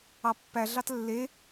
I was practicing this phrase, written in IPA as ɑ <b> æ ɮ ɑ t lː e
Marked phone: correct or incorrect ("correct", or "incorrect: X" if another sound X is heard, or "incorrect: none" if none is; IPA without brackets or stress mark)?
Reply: incorrect: pː